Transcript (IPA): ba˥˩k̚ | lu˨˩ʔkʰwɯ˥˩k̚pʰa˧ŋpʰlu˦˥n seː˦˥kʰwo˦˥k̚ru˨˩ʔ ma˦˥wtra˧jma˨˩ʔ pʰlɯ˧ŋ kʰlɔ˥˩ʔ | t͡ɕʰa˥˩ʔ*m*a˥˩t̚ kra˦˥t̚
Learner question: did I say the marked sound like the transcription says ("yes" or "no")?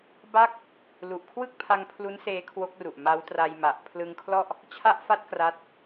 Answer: no